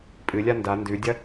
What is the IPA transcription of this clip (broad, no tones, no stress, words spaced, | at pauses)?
pʼɨlʲa nda ndʉdʲɐ